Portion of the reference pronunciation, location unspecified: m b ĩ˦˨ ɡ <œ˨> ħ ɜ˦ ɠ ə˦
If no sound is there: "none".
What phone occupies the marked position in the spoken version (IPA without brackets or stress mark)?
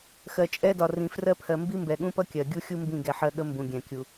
ɛ˨